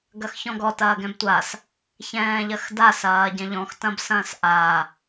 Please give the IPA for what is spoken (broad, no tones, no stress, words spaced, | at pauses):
ɡɐxçɔ̃ɡɔt ɐːɡɛ̃btʷas | çɛ̃ːʎɐxda sɐːɟɛ̃ʎɔ̃x tɐ̃bsɐ̃ːsʔa